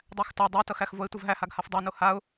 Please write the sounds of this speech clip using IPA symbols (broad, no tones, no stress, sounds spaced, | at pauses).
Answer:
dˤ æ x t a dˤ a t ʌ x æ x v o ɪ̯ tʷ ʌ v ɦ æ h a ɡ h a f dˤ a n o h a ʊ̯